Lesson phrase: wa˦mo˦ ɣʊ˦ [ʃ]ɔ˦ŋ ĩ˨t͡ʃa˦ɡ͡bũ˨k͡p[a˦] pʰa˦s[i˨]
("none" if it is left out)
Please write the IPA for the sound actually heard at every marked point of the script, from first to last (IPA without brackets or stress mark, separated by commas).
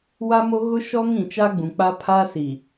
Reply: ʃ, a˦, i˨